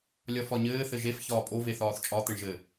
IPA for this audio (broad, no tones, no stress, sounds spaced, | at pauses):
lʲ ɒ f ɒ ɲ ɘː θ ɘ ʒ e f ç ɒː pʼ o v e θ ɒː θ t͡ʃʼ ɒ t̪ ɘ ɳ ʒ ɘ